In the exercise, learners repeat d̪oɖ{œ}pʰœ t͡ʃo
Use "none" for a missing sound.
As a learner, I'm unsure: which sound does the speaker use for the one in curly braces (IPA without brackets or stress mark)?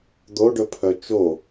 ɵ